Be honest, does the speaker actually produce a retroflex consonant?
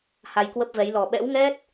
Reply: no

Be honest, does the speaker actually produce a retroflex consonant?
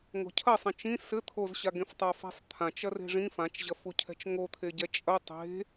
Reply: yes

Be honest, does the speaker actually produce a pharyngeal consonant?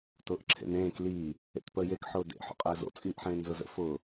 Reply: yes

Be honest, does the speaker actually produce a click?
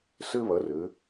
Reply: no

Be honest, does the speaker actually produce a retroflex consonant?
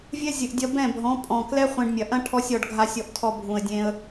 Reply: yes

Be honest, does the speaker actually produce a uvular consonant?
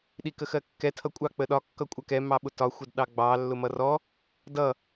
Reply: no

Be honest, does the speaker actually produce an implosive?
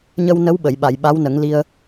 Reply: yes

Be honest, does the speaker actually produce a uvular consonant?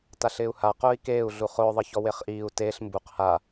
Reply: yes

